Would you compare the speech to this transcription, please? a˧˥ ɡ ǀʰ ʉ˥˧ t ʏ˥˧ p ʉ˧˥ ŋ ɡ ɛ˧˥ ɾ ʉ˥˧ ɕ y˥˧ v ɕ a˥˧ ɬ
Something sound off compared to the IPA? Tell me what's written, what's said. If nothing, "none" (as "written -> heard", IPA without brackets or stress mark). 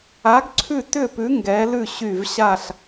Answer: ɾ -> l